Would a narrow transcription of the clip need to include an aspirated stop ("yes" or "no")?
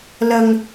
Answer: no